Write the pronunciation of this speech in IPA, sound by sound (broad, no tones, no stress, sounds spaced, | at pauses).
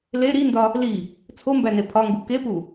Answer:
l e ɾ i n d ɒ | l i | t͡sʰ o m b æ n e pʰ ɒ ŋ ɡ u k e p u